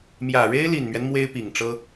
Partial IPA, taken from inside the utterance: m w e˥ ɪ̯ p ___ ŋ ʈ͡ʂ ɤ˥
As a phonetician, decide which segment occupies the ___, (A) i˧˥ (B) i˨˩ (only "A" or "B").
B